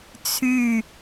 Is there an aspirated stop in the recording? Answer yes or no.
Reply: yes